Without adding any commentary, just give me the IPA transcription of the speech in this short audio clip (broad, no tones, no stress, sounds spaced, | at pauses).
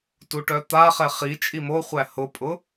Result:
t u ʈ œ t̪ a χ ɛ χ i t͡ʃʼ i m o χʷ æ h ʊ pʼ ʊ